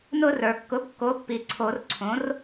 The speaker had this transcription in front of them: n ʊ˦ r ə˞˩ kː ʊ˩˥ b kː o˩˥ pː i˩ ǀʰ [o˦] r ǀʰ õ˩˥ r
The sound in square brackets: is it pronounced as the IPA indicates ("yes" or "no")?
no